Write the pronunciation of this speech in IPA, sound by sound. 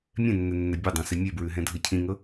mʲ ɛ̃ nː ɛ nː ɛ bʲ e dˤ æ̃ s i mʲ e b ɹ ʉ ɦ ɛ̃ dʱ ɤ cʰ ĩ ŋ ɤ

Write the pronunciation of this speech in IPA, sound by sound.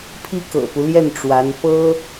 pʰ i˥ k ɤ̰˨˩ p u˦ l j ɛ˥˩ n ʈ͡ʂ w a˧˥ n p ɤ˥

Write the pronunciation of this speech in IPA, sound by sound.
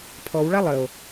pʰ ɔ w ɭ a lˠ ə o̯

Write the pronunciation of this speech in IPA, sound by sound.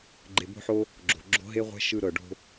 ɡ͡ǃ e˨ b o̤˧ ħ o˧ | ɡ͡ǁ o̤˨ ɡ͡ǁ o̤˦ ɦ e˦ ʁʷ ɛ̤˦ ʃ ɯ˧ ɾ ɤ˨ ɖ o̤˧

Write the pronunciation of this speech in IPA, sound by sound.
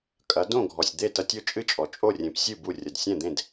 kʼ ɐ˩˥ d õ˥˩ ɡʱ ɔ˩ sʲ d̪ e˥˩ t ɐ˧ tʲ o˥˩ t͡ʃʼ ɨ˥ t͡ʃʼ ɔ˩ t͡ʃʼ o˥˩ rʲ ẽ˩˥ p sʲ ɨ˥˩ b u˥˩ rʲ ɐ˩ d sʲ ɛ̃˥˩ d̪ ẽ˥˩ d

